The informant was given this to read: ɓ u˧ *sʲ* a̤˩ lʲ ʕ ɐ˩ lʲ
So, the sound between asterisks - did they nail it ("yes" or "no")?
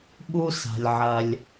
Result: no